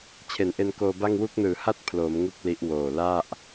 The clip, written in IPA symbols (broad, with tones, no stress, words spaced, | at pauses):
t͡ɕʰe˩˦nʔe˧nkoː˧ba˥˩ŋ wu˦˥k̚nɯː˨˩ha˥˩t̚ pʰloː˩˦mŋu˦˥k̚ li˦˥ʔwoː˨˩ la˥˩ʔ